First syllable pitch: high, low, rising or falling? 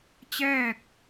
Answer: falling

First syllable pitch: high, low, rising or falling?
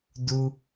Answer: high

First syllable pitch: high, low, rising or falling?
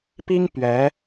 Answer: high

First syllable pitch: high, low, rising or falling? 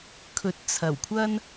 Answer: rising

